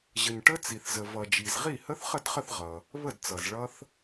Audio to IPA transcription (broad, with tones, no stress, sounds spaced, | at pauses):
ʑ ə˩ ɲ ʈ ə˦˥ t͡s i˩ θ z ə˩ v ʌ˩ d͡ʒ i˩ z ʁ i˥˩ h ə˦˥ θ χ ə˥˩ d χ ə˥˩ θ ʁ ʌ˩ | β ə˥˩ d t͡s ʌ˩ z ɭ ʌ˦˥ θ